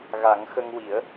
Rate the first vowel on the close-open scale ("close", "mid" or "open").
open